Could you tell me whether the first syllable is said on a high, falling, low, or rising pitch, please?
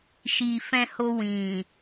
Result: low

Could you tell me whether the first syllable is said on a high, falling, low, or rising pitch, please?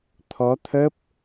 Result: rising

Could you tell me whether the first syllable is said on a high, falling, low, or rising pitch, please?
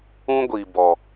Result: high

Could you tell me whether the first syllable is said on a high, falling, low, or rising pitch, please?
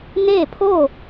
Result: falling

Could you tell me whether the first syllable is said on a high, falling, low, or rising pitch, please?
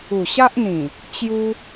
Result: low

